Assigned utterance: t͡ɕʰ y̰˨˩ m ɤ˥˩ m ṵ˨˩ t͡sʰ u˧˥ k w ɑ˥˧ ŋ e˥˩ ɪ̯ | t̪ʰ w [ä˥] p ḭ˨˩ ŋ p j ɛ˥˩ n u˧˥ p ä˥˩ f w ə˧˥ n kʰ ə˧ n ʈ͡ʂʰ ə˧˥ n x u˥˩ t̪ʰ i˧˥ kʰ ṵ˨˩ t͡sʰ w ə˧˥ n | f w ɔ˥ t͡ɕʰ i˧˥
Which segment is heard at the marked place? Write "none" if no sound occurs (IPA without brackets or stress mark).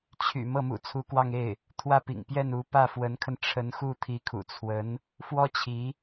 ä˥˩